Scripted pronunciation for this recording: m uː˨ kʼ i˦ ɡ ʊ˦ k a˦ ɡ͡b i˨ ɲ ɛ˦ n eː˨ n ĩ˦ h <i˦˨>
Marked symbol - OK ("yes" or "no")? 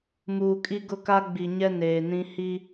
no